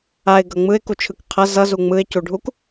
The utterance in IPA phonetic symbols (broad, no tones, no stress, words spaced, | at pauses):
aɪ̯ɡʌ ŋ͡mɯɪ̯kut͡ʃʰɯk qʰʌ zʌzu ŋ͡mɯɪ̯cuɖʱuk